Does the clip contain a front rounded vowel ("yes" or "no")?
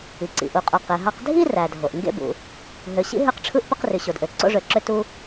yes